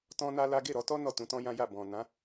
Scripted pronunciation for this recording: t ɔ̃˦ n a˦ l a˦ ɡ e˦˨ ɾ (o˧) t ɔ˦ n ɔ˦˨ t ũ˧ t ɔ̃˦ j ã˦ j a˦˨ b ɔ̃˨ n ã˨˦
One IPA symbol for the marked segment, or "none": ɔ˧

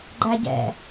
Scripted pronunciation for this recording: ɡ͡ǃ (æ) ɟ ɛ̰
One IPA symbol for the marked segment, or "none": æ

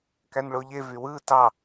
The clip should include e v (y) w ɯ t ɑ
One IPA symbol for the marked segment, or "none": y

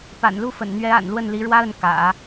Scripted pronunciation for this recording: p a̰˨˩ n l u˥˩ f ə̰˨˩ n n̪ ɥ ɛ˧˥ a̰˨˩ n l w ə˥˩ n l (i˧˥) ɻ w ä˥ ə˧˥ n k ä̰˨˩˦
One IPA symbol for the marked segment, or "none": i˧˥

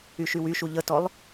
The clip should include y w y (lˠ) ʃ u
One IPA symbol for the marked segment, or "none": none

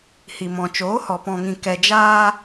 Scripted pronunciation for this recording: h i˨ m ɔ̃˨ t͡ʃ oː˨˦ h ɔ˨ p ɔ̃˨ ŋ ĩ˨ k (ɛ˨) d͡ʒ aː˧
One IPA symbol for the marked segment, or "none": ɛ˨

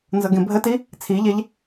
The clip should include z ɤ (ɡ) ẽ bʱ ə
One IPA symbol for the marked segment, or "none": ɡ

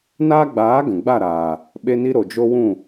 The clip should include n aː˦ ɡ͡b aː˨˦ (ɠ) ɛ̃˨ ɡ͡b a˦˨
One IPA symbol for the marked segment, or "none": ɡ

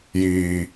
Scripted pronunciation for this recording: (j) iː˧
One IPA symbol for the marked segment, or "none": j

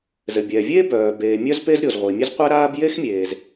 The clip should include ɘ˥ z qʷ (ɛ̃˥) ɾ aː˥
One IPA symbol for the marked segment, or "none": ɛ˥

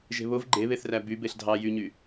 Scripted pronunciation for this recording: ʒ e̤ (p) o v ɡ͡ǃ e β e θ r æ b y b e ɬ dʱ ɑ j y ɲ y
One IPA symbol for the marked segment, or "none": β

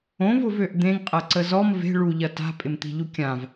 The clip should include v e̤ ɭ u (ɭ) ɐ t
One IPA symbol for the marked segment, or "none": ʎ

